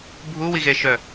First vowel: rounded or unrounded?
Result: rounded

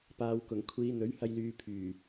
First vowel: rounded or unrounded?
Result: unrounded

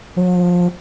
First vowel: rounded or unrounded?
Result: rounded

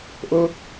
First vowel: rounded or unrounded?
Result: rounded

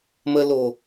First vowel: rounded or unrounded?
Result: unrounded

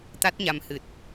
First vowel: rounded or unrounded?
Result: unrounded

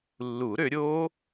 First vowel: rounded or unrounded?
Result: rounded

